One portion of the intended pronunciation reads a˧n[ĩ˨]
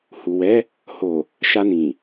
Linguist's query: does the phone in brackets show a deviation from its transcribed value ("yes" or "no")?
no